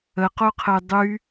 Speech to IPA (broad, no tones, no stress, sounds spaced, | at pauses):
ə q o qʰ ə j dˤ y